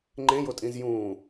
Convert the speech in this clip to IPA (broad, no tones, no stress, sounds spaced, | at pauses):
ŋ͡ǃ ẽ j o tʼ ĩ z j ũː